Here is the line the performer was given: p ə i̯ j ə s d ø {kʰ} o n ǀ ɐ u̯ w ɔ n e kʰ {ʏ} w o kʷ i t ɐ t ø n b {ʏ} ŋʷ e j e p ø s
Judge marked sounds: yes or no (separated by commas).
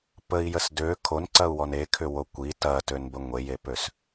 yes, yes, no